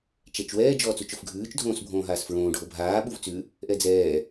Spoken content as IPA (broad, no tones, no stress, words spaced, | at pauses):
t͡ʃɛt͡ʃwɛː d͡ʒɔːt͡sut͡ʃofɡʱʉːt͡ʃ dʱõːsbʱõːɦaːsfɹõː ɖʱobʱaː ɓuvt͡sʉ | ʔɛd͡zɛː